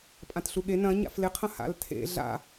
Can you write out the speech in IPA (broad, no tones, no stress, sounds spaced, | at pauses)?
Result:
pʼ ã t ɬ u ɠ e n ɐ̃ ɲ a̰ f l ɪ qʰ ɐ̃ h a̰ l tʰ ḛ ɮ a̰